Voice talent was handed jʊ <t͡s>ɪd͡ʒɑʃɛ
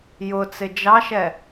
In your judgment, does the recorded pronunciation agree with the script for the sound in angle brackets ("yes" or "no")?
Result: yes